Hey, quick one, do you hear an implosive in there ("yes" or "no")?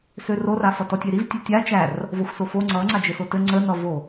no